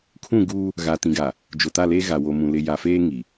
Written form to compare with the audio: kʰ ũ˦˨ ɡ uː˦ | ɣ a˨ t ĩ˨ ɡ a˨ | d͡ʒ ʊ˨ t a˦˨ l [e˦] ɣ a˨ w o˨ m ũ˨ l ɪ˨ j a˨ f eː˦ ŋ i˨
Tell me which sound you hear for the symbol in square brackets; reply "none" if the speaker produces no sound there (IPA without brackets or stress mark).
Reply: e˦